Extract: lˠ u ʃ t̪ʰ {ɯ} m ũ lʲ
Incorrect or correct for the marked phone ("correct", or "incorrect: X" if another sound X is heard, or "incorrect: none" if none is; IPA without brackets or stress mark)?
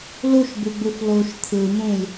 correct